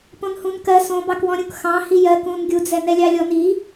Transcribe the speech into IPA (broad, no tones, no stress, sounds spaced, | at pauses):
p õ n h ũ n k ɜ s õ b ɑ k w ɔ̃ ɾʲ ũ k x ɑ̃ h i j ɜ k ũ n ɡʲ u d͡z ɛ n ɛ lʲ ɑ lʲ ɔ n i